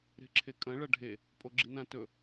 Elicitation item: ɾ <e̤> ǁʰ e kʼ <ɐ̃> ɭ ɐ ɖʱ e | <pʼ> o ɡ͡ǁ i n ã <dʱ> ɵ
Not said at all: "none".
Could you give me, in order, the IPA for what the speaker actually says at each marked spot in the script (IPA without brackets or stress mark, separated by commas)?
e̤, ɐ̃, pʼ, t